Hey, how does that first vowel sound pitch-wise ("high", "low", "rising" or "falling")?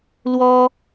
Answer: high